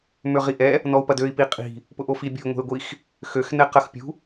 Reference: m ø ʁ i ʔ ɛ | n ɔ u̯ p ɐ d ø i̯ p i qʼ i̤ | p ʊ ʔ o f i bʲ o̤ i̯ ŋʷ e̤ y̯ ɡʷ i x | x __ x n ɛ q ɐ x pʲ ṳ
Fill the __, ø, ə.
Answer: ø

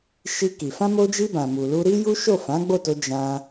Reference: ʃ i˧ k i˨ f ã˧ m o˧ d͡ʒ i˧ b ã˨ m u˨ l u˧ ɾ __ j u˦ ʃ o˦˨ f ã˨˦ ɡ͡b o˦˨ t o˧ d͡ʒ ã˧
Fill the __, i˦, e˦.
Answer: i˦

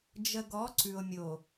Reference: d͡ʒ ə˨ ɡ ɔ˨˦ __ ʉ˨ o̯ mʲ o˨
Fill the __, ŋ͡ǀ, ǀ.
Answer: ǀ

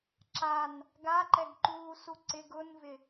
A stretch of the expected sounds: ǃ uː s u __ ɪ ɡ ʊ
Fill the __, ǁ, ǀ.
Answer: ǀ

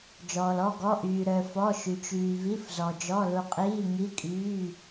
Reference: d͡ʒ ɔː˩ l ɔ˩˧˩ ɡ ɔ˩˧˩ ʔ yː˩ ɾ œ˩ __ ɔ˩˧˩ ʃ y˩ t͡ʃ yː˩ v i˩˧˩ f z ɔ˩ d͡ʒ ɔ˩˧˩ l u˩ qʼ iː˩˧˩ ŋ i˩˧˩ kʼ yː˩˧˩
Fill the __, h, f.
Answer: f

